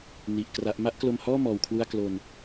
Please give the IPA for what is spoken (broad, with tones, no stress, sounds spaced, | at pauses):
n i˨˩ ʔ k r a˦˥ ʔ m a˥˩ ʔ k l o˧ m h ɔː˥˩ m ɔː˧ w kʰ w u˥˩ a̯ k l o˧ n